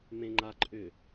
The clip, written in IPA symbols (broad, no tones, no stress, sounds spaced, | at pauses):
m ẽ ŋ͡ǃ a ǃʼ ʏ